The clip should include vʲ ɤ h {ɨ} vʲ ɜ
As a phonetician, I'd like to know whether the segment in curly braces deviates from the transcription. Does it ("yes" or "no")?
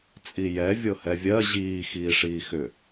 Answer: yes